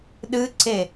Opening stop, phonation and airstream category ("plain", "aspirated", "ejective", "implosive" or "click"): implosive